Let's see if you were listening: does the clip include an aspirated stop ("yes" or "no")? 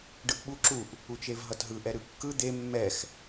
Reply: no